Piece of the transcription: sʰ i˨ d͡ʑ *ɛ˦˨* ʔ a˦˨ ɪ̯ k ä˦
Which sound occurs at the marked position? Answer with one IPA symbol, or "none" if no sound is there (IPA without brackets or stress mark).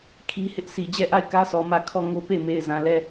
ɛ˦˨